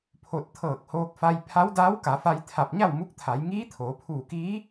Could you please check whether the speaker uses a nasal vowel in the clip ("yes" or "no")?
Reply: no